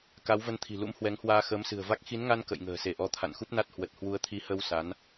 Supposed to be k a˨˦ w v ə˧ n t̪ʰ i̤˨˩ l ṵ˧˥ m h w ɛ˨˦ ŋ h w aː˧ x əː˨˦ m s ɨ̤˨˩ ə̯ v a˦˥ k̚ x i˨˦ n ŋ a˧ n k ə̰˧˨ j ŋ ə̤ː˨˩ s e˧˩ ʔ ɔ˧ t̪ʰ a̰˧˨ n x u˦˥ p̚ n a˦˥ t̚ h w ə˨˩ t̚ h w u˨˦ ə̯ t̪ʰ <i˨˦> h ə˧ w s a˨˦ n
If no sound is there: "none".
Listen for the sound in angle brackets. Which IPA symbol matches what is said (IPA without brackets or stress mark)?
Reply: i˨˦